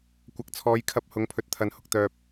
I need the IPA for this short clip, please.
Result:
kʷ ɐ˨ k̚ t͡sʰ ɔː˨˧ j kʰ ɐ˧ p̚ h ʊ˨˧ ŋ pʰ ɵ˨˥ t̚ t̪ʰ ɐ˨ n h ʊ˨ k̚ t̪ œː˨ p̚

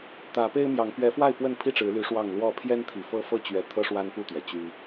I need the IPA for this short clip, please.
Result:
t̪ ä˨˦ p e˦ ɪ̯ m j ɑ˨˦ ŋ p ɥ ɛ˨˦ f w a˥˨ ɪ̯ p w ə˥˨ n pʰ i˥˨ ʈ͡ʂ ɻ̩˨˦ l y˨˦ ʂ w ɑ˥˨ ŋ l w ɔ˥˨ pʰ j ɛ˦ n t̪ʰ i˨˩ f ɤ˦ f ɤ˦ t͡ɕ ɥ ɛ˨˦ t̪ʰ ɤ˦ ʂ w a˦ n p u˥˨ t̪ ɥ ɛ˩ t͡ɕ y˦

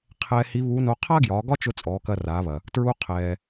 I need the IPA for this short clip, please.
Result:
qʰ ɛː˧ h i˧˥ β u˧˥ n o˧˥ qʰ a˥ ɡ j ɒ˩˧ ɡ ɒ˥ t͡ʃ ʊ˧ t͡sʼ ɔː˩˧ k ɐ˧ r aː˩˧ β ɐ˩ | t ɹ u˧ qʰ ɛː˩

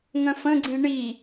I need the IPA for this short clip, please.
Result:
ŋ œ̃ f ə̃ ɡ͡ǀ ĩ ɳ i

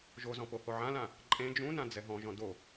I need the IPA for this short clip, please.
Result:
ʒ o z ɔ̃ p o h o ʕ ã l ã | ǃʼ ẽ d͡ʒ ũ n ã d͡z ɛ ɦ ɔ̃ ʒ ɔ̃ d o

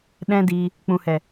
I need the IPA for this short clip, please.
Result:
ɗ ɛ̃˦ d iː˧ | k͡p ũ˨ h ɛ˨

